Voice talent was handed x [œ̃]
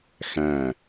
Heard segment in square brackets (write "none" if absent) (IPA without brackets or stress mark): æ̃